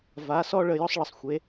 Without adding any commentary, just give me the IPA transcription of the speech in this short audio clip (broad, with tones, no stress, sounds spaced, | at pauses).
v a˩˥ s ɔ˥ ɭ ə˧ j ɔ˥ sˤ ɭ ə˩˥ sˤ xʷ e˩˥